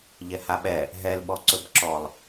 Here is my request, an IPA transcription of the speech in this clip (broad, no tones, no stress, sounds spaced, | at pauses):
ʎ ɛ h a ɓ ɛ | ɦ ɛ l ɓ ɔ ǀ ɵ b ǁ ɔ lˠ